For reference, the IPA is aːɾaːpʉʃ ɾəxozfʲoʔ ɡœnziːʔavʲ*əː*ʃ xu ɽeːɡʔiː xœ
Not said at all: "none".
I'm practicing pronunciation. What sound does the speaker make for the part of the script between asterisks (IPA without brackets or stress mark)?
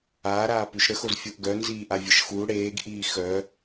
ə